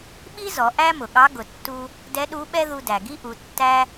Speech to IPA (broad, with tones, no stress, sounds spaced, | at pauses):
ɓ i˥ z ɔ˩˧ ʔ æ˥ m ʊ˩ ɠ ɑ˧˥ ɡ ʊ˩ tː u˧ | d ɛ˧˥ ɗ u˧˥ ɓ ɛ˥ ð u˧ d æ˩ ɡ i˥ ʔ u˩˧ tː æ˥